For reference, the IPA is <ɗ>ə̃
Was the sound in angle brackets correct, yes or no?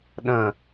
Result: yes